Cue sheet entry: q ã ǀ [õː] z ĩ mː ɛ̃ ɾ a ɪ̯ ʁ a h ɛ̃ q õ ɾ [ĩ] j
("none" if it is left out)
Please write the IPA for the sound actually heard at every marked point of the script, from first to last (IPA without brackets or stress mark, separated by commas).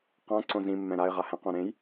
õ, ẽ